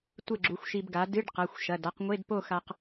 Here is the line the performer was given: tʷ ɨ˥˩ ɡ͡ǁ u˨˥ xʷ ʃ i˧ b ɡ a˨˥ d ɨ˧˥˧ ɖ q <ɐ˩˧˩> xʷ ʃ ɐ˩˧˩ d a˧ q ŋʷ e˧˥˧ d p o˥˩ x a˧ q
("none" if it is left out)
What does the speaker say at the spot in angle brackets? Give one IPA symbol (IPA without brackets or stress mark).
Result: ɐ˩˧˩